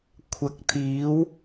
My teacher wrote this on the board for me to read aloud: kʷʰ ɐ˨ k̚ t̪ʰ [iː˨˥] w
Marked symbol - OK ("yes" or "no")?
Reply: yes